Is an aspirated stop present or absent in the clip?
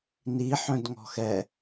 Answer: absent